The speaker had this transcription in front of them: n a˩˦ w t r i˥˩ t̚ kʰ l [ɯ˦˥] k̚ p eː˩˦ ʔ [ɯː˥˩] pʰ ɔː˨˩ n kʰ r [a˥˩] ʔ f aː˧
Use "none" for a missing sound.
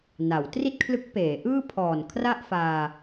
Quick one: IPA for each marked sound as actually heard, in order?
ɯ˦˥, ɯː˥˩, a˥˩

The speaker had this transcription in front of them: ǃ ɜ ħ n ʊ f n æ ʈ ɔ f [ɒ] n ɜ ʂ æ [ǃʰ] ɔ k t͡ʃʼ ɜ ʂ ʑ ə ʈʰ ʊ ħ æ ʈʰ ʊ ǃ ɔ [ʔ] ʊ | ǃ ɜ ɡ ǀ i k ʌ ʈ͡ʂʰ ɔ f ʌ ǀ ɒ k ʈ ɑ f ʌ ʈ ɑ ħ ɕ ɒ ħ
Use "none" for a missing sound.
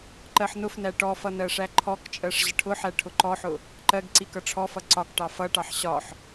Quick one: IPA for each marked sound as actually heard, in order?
ʌ, ǃʰ, ħ

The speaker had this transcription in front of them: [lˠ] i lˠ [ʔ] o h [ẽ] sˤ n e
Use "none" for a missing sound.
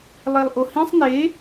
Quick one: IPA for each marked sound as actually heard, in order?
lˠ, ʔ, ĩ

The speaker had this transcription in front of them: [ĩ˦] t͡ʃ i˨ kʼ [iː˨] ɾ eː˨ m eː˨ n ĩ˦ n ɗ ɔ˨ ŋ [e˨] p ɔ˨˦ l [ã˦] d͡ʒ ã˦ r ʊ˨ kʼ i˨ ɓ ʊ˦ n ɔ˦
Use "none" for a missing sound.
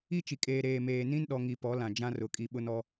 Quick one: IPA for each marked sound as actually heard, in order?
i˦, eː˨, i˨, ã˨

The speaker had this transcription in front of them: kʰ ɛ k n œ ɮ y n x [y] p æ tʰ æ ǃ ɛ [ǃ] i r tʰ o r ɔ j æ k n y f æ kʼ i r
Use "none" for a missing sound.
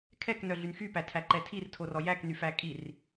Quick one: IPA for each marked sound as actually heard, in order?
y, tʰ

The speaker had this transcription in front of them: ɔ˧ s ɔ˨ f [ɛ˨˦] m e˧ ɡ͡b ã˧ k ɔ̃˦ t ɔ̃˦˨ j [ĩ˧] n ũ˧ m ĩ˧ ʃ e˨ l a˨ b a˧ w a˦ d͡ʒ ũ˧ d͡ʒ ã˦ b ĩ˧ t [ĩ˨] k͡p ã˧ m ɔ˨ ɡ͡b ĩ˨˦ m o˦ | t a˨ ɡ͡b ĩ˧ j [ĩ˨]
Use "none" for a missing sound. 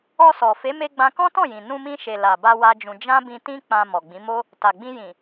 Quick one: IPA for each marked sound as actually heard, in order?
e˨˦, ĩ˨, ĩ˦, ĩ˨

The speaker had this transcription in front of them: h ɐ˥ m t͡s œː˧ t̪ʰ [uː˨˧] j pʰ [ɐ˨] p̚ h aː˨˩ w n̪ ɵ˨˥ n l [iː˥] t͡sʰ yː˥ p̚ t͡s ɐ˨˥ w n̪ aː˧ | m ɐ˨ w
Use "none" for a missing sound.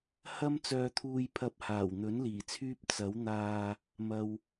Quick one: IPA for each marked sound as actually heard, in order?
uː˧, ɐ˧, iː˨˩

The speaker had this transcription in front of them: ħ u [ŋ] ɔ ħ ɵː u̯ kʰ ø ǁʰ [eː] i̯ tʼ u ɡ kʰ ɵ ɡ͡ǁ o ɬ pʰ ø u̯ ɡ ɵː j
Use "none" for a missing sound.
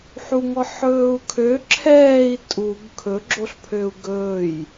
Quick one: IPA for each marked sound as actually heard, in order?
ŋ, ɛː

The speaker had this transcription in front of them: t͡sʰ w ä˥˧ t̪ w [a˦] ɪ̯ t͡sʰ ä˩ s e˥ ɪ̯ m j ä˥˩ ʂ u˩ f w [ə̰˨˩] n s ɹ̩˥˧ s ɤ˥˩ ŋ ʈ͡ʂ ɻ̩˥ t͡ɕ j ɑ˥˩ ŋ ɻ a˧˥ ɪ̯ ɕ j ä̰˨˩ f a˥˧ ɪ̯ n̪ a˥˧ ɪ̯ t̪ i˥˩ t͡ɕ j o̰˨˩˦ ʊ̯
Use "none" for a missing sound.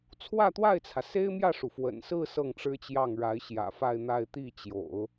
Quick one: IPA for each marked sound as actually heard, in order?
a˥˩, ə̰˨˩

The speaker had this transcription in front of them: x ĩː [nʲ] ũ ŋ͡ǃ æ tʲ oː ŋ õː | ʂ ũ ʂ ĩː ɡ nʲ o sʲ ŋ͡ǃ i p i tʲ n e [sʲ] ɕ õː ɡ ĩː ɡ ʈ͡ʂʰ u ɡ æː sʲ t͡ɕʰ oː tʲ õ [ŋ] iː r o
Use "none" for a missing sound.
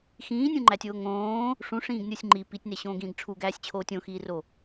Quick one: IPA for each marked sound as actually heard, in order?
nʲ, none, x

